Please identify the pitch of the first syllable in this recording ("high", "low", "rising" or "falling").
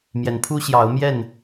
rising